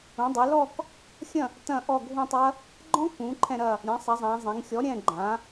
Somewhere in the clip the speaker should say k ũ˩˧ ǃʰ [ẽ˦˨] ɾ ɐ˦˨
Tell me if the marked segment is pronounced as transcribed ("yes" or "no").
no